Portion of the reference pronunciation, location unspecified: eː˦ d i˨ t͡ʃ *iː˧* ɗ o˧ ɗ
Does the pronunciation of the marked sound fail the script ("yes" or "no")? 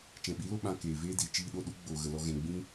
no